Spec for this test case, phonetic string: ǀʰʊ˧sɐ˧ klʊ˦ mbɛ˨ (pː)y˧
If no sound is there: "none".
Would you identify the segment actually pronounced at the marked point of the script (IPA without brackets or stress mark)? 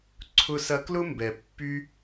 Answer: pː